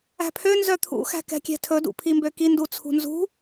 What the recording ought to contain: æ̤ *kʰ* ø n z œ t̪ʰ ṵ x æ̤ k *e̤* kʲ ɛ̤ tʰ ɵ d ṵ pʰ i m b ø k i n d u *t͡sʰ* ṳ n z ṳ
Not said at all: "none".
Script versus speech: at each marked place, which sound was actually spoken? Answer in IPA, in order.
pʰ, ɛ̤, t͡sʰ

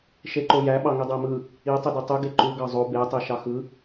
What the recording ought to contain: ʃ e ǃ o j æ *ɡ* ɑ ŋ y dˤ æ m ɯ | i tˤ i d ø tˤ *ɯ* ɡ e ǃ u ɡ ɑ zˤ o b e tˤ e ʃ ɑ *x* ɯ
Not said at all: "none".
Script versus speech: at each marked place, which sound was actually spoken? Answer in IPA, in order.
ɓ, u, x

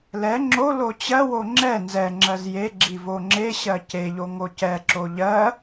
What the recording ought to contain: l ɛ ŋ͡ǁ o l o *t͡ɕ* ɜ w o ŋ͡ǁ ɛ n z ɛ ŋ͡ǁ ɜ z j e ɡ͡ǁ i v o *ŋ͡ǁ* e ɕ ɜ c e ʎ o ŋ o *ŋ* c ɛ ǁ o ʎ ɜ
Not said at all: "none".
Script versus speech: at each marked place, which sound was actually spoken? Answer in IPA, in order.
t͡ɕ, ŋ͡ǁ, none

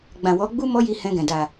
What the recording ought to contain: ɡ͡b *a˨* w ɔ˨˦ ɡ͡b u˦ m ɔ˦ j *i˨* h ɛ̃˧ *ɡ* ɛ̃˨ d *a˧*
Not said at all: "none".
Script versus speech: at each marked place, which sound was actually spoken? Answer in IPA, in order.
ã˨, i˧, ɡ, a˨

